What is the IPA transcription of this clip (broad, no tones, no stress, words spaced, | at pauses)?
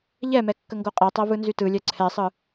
ʎɛmɛ kːəŋɡoqʼɛtˤɜ vɯnzytɯlʲɛ ǀʰɛsˤɯ